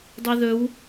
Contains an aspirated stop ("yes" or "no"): no